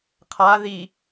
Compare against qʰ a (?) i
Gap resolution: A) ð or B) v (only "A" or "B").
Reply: A